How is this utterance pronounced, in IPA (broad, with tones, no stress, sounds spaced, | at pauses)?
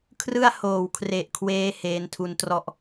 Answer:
kʰ r ɯ˥˩ a̯ h oː˨˩ w kʰ r e˨˩ ʔ kʰ w eː˧ h eː˧ n tʰ u˧ n t r ɔ˥˩ ʔ